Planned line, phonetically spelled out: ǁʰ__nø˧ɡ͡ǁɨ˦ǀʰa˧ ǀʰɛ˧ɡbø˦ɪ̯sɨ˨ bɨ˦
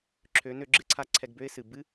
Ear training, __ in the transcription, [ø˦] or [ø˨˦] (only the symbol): ø˨˦